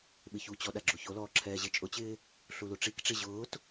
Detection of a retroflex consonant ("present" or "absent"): present